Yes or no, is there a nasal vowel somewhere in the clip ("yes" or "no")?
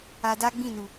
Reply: yes